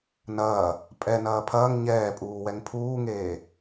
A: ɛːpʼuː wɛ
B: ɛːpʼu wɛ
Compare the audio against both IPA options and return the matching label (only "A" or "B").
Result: A